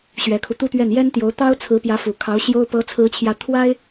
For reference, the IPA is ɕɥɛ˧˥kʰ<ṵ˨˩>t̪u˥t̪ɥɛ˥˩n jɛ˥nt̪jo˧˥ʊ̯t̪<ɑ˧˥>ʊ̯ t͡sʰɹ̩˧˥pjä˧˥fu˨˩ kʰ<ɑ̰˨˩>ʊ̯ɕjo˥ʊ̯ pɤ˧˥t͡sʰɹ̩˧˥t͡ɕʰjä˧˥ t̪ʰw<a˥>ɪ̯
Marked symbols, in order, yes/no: no, no, no, yes

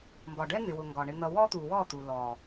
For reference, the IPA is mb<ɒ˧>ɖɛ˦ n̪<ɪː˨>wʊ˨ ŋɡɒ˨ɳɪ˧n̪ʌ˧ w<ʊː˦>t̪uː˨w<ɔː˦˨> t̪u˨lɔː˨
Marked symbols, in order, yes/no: no, no, no, yes

